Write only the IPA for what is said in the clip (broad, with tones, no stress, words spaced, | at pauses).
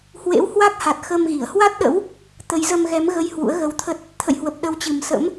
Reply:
hwḛ˧˥whwa˦˥k̚ ha˨˩t̚xə˧mɣi˧˩ə̯ hwa˦˥t̚ɗə̰˧˥w | t̪ə˨˦j zə˧mɣɛ˨˦m ɣə˧j hwṵ˧˥ə̯ɣə˧wt̪ʰə˦˥t̚ | t̪ʰə̰˧˨jhwə˨˩p̚ ɗə˨˦wt͡ɕɨ˨˩m sə̰˧˥m